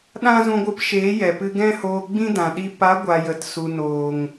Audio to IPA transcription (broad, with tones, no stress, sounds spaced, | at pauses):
ɗ ã˦ z ũ˧ ɡʷ ɨ˧ p ʃ eː˨˦ j ɛ˨ p ɨ˧ ɡ ɛ̃˦ h oː˧ ɡ͡b ĩ˦ d ã˨ ɗ i˧ p a˨˦ ɡʷ a˨ j ə˨ t s u˨ n oː˨ ŋ